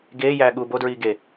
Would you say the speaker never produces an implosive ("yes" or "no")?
no